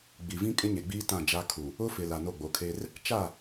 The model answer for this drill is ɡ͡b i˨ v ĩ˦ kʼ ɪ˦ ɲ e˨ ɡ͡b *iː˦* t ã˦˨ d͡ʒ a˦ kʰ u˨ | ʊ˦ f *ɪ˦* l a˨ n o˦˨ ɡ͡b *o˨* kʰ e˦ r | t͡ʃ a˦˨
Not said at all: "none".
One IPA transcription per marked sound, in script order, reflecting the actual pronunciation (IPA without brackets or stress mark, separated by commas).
iː˦, ɪ˨, o˨˦